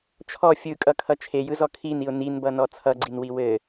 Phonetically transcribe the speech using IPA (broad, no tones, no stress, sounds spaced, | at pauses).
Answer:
t͡ʃʰ ɔ fʲ ɯ kʼ ʌ kʰ ʌ t͡ʃʰ e j ɯ z ɔ kʰ i n i ʊ̯ n i n b ʌ n ɔ t͡sʰ ʌ ɡ͡ǀ i n w i w ɘ